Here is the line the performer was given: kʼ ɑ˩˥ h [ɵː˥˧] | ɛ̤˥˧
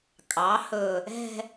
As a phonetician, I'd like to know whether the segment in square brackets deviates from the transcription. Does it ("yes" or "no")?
yes